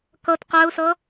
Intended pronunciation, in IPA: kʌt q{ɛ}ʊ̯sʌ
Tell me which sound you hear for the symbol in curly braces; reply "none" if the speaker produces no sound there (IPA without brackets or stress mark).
æ